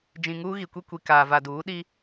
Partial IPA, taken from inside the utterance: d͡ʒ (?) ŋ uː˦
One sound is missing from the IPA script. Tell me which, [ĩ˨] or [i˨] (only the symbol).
ĩ˨